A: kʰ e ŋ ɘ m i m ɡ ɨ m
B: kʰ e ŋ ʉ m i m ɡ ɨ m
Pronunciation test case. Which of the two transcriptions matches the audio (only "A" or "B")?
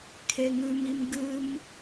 B